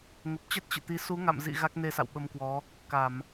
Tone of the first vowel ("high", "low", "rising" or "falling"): low